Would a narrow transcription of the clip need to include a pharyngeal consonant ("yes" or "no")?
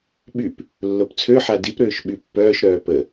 yes